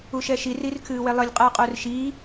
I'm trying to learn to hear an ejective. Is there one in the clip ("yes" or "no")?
yes